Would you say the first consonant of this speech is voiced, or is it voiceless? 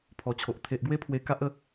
voiceless